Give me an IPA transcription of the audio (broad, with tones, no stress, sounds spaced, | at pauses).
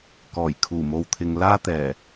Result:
k ɔː˨˩ j kʰ uː˨˩ m o˨ w t̪ʰ ɪ˨ ŋ l aː˥ t̪ ɛː˨˩